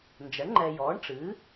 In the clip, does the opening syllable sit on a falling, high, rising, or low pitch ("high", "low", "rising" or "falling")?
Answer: rising